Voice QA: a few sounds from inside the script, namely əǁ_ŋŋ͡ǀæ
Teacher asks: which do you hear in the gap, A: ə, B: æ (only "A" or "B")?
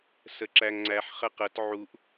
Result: B